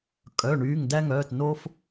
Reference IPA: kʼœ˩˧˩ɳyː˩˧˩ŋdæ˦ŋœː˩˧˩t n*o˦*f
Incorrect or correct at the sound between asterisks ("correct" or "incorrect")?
correct